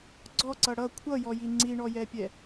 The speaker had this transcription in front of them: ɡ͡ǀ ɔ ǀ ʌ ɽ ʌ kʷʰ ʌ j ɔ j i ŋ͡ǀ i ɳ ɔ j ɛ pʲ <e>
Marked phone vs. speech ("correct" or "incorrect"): incorrect